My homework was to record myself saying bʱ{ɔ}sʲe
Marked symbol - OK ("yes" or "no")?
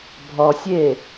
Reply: yes